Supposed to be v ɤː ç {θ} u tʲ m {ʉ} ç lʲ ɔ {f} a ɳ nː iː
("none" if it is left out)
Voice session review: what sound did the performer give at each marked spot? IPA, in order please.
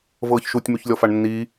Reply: ʃ, ʉ, f

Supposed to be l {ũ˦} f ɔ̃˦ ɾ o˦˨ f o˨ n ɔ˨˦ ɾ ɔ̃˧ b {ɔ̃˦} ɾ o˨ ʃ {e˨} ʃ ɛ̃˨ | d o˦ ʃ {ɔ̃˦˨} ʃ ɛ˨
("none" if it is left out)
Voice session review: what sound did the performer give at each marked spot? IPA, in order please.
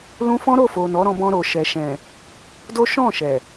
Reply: ũ˦, ɔ̃˧, ɛ˨, ɔ̃˦˨

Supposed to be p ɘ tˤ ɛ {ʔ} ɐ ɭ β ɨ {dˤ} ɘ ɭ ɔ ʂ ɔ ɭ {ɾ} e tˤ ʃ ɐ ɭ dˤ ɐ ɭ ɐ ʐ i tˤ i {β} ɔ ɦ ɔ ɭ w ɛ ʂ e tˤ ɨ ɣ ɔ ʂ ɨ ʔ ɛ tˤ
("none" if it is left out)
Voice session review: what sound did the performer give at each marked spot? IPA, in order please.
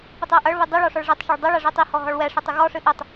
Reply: ʔ, dˤ, ʐ, h

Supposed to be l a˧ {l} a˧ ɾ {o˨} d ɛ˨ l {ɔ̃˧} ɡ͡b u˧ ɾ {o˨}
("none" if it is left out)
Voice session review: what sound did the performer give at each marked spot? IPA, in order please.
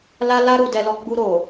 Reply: l, u˨, ɔ˧, o˨

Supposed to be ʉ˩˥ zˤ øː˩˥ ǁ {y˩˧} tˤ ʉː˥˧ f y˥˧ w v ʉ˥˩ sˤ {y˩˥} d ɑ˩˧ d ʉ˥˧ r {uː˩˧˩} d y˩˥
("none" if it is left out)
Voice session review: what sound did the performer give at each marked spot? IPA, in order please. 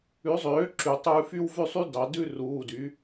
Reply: y˩˧, y˦˥, uː˩˧˩

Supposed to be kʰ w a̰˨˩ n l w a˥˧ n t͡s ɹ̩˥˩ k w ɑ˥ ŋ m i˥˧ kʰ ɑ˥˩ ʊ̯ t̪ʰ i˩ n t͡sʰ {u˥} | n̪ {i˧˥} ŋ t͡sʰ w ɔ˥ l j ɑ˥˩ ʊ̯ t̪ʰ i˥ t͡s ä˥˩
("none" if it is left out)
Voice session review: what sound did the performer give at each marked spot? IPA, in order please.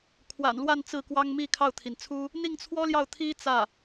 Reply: u˥, i˥˩

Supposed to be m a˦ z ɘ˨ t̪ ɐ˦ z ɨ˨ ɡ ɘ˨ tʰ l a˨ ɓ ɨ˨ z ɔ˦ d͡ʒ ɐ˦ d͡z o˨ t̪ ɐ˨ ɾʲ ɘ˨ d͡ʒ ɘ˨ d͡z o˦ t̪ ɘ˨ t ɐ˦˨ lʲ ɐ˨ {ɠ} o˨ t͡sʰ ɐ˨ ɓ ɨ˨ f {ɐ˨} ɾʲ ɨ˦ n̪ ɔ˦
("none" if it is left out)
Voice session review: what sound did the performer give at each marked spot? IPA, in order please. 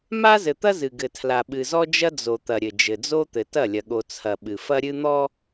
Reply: ɠ, ɐ˦

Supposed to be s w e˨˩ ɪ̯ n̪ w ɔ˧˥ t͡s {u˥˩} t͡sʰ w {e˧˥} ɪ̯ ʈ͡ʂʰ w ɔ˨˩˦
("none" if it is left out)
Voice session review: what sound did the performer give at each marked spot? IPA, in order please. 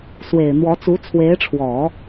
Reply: u˧˥, e˧˥

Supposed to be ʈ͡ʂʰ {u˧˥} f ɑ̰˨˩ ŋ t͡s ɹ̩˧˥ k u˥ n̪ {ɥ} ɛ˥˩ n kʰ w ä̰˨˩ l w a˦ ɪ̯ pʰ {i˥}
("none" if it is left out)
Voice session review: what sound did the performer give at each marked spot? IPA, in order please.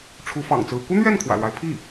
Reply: u˧˥, ɥ, i˥˩

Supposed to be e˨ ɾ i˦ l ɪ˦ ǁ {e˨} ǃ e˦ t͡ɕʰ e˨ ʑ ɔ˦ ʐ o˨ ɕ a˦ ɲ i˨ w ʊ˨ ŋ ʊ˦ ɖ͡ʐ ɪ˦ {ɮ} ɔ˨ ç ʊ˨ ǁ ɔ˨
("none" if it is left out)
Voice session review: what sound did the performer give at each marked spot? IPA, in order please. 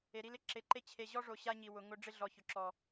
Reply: e˨, ɮ

